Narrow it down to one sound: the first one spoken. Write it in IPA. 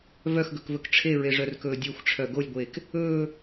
v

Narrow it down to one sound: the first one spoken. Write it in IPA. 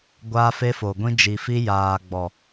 ɡʷ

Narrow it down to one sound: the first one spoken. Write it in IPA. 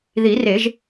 ð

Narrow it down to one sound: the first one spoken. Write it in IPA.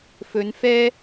f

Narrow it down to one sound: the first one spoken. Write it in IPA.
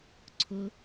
ǀʰ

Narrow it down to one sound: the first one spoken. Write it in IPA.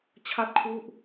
t͡ɕʰ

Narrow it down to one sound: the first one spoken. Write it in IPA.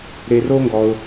ɾ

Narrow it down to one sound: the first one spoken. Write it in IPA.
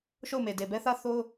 ʃ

